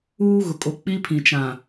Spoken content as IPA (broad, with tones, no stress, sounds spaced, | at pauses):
uː˦ ɣ ʊ˨ kʼ o˨ k͡p i˦ pʰ ĩ˨ t͡ʃ ã˨